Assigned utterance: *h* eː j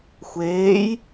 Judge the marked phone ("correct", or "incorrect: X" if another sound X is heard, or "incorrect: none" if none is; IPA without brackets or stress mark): incorrect: xʷ